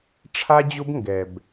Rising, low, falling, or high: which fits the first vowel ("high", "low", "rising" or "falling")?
high